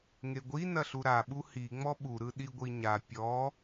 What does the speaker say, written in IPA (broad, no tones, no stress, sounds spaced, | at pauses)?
ŋ e ɡʷ i n ɐ ɬ u ɾ a ɓ u h i ŋ͡m ɔ ɓ u ɾ ɯ ɗ i ɡʷ i ɲ a pʲ ɔ